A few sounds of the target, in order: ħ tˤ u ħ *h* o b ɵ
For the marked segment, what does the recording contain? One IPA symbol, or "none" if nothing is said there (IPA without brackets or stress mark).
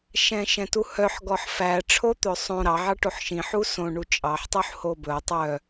h